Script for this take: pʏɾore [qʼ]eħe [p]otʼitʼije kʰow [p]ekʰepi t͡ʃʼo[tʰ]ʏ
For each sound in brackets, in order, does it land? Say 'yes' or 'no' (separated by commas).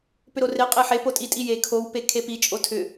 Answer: yes, yes, yes, yes